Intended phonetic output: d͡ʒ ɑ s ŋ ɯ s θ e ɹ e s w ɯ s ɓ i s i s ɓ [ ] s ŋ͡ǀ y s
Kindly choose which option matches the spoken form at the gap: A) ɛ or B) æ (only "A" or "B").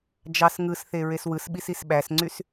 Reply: B